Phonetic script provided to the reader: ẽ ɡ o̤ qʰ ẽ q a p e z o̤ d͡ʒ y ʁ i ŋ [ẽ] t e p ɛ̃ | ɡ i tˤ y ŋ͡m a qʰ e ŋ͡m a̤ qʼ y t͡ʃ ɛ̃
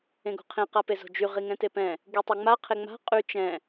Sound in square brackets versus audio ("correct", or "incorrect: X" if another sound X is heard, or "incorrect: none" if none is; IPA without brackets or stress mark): incorrect: ɛ̃